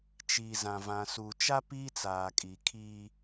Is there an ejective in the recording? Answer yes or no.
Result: yes